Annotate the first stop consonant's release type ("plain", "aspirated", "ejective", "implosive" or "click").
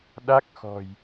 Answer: implosive